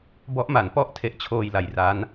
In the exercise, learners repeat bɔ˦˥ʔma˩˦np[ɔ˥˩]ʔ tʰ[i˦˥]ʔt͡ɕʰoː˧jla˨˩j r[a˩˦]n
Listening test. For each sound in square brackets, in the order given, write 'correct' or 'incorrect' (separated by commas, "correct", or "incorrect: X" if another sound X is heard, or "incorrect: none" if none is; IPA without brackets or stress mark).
correct, incorrect: e˦˥, incorrect: a˦˥